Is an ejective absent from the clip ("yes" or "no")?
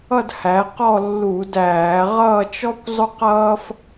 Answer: yes